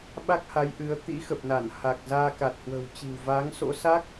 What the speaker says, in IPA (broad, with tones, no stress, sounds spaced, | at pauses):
ɓ a˦˥ k̚ h a˨˦ j ʔ ɨ˨˦ ə̯ t̪ ḭ˧˥ x ə˨˩ p̚ n a˧˩ n h a˨˩ k̚ z aː˧ k a˨˩ t̚ h w ə̤˨˩ w t͡ɕ i̤˨˩ w v aː˨˦ ŋ s o̰˧˥ s a˦˥ k̚